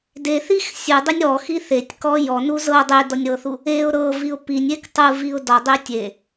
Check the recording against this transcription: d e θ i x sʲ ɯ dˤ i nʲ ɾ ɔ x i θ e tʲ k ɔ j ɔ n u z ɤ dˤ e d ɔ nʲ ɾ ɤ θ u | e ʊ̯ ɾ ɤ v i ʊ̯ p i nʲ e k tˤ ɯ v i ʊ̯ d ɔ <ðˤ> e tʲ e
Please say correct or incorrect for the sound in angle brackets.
incorrect